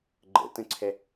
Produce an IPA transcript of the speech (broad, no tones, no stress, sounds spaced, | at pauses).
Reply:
ɡ͡ǃ ə̰ t ə̃ ǀʰ ɛ